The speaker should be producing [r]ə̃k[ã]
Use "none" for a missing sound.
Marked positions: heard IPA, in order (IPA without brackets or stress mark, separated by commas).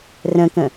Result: r, ə̃